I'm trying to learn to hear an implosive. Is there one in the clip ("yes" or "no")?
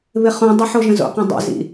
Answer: no